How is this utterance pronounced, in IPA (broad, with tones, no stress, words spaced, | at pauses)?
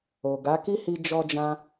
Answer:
o˨ ɡa˨˦ ki˦hi˧ d͡ʒɔ˧d͡ʒã˧